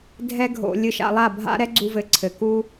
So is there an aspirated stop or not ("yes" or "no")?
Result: yes